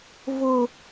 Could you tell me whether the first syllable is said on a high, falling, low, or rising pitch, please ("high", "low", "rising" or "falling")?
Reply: high